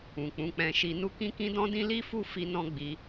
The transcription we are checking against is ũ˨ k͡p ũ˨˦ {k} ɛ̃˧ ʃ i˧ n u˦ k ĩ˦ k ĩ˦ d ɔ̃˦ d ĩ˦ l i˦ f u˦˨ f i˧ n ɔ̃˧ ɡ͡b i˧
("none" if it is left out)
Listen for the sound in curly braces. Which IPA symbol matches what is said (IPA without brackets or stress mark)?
k͡p